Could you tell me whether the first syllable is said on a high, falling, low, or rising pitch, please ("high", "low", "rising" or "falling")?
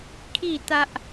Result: falling